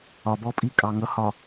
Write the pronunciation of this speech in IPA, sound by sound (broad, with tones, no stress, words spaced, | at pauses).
ɒ˨bɔ˦pʼi˦ kʼɑ˨ŋʌ˨˦ hɒ˨